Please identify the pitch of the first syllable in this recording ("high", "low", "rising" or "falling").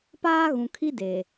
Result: high